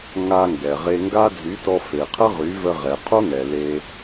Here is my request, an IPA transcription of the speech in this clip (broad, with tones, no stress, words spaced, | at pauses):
ŋa˧ŋɡɛ˨ʁe˧ ŋɡa˦ d͡zy˨˦tɔ˧ fe˨qʰə˦ʁy˨˦və˧ ʁɛ˨qʰo˦ŋɛ˨ le˦